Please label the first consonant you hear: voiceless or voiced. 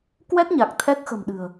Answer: voiceless